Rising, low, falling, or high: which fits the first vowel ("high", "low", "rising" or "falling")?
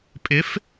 rising